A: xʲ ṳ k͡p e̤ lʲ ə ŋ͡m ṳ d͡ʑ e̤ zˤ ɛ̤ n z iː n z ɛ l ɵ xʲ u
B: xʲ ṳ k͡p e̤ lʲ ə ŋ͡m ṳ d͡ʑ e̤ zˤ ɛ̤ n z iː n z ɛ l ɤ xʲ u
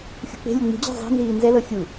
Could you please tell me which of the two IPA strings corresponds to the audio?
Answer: B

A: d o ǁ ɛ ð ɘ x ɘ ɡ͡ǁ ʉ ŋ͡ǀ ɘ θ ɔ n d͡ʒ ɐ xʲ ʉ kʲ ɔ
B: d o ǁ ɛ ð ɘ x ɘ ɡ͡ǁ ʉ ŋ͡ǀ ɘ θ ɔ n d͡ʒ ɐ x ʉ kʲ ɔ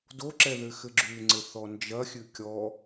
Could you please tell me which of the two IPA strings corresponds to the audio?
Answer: A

